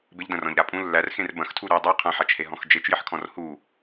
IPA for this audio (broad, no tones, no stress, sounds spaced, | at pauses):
b ɪ ʎ d ɐ̃ r ɔ̃ ʎ ɾ a pʼ ũ lː æ r x ẽ r b ɐ̃ x tʰ u ɾ ʉ dˤ u qʰ ɐ̃ ħ a t͡ʃ h e ɦ ɔ̃ x d͡ʒ e t͡ʃ j ɪ ħ kʰ ɔ̃ r h u